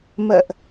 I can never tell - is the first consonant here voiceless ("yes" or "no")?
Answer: no